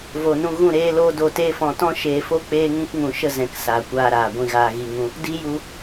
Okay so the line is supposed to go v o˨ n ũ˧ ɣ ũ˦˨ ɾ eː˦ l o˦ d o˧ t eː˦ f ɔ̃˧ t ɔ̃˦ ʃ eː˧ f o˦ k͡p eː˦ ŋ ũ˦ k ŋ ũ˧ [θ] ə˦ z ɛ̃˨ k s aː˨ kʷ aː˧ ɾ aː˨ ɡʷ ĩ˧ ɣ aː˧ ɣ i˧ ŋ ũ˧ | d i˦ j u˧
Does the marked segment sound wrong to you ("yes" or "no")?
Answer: yes